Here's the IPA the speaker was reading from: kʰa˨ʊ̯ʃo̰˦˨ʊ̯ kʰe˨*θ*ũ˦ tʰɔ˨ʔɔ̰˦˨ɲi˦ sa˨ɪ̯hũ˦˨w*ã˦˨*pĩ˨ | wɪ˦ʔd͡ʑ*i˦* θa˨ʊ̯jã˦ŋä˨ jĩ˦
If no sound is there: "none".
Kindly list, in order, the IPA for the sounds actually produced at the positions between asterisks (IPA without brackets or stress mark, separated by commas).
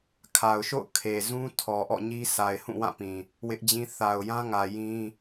z, ã˦˨, ĩ˦